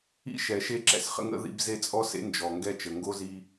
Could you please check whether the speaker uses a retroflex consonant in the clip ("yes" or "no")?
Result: no